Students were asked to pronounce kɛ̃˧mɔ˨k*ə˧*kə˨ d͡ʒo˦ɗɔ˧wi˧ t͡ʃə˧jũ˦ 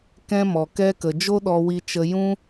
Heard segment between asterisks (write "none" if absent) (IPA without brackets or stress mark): ɛ˧